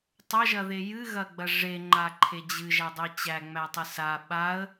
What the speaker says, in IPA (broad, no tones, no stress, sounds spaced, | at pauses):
tˤ ɐ ʒ ɐ ð e j ɨ ɣ ɐ ɡ͡b ɐ ʐ e ŋ͡ǃ a ǃʰ e d͡ʑ ɨ ʒ æ dˤ e t͡ɕ æ ŋ͡m æ tˤ ɨ s a ɓ a ə̯